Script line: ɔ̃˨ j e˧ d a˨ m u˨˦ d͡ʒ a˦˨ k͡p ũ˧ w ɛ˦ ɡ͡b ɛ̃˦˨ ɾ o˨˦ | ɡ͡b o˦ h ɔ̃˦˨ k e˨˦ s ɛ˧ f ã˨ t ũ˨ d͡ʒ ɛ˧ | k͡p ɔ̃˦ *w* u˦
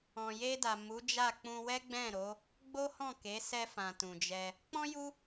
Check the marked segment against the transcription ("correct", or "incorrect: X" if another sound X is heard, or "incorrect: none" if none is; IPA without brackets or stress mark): incorrect: j